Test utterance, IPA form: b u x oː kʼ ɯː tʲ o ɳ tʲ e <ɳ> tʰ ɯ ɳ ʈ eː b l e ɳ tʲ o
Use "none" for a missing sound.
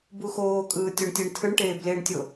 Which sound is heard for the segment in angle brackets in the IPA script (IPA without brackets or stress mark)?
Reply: ɳ